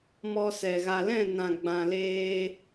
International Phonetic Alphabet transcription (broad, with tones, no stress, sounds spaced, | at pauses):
m ɔ˧ s ɛ˨ ɣ a˨ l ɛ̃˦˨ n ã˨ ɡ͡b ã˨ l eː˧